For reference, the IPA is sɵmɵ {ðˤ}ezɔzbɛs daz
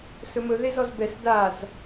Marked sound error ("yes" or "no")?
yes